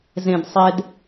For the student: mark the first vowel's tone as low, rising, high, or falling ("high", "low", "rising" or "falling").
low